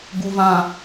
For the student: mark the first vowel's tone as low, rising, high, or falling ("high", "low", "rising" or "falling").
low